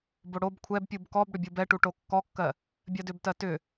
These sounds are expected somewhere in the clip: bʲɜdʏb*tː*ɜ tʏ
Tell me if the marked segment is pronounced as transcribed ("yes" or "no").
no